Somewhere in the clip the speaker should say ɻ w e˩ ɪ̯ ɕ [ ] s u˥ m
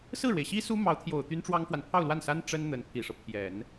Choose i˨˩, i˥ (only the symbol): i˥